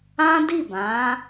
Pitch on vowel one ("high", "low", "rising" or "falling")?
high